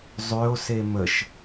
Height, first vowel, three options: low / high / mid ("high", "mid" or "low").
mid